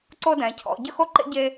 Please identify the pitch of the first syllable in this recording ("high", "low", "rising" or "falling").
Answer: high